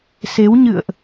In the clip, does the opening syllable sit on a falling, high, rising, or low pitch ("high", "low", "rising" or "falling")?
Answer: rising